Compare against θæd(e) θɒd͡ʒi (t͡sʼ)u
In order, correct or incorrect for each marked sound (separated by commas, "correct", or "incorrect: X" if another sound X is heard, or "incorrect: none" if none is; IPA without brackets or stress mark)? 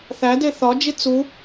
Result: correct, incorrect: t͡s